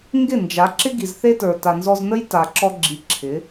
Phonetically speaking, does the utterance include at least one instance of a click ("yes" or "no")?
yes